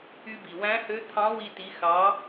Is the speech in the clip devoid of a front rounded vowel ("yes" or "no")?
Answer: no